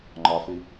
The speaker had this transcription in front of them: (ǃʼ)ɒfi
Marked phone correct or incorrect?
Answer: incorrect: ŋ͡ǃ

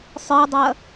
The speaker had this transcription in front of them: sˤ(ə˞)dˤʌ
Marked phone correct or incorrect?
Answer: correct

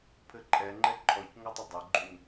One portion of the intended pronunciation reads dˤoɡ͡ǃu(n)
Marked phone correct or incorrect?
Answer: correct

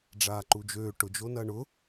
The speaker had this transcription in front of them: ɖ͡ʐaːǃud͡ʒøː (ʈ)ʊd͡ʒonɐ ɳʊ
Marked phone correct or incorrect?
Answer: correct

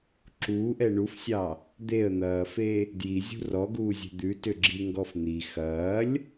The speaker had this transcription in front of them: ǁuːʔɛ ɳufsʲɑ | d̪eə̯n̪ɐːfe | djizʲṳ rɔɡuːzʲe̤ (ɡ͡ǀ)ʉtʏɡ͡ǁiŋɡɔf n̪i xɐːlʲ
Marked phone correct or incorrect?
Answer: incorrect: d̪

